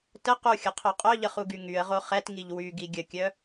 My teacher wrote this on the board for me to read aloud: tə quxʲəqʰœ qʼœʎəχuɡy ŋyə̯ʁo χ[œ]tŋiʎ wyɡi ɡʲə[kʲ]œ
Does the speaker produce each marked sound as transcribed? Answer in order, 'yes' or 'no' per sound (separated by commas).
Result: no, yes